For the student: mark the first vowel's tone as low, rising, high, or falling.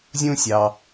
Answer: high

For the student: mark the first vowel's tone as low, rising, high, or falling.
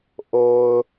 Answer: low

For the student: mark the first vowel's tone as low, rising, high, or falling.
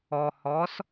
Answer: low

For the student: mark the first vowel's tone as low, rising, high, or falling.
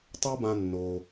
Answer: high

